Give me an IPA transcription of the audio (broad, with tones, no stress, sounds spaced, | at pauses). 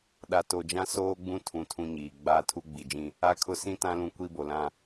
ɗ a˨ t o˨ d͡ʒ ã˦ s oː˦ ɡ͡b ũ˦ tʰ ũ˨ tʰ ũ˦ ɲ iː˨ ɡ͡b aː˦ tʰ u˦ ɡ͡b i˨ d͡ʒ ĩ˦ | a˦ kʰ ʊ˦ s ĩ˦ t ã˦ l ũ˦ kʷ i˦ b o˨ l ã˦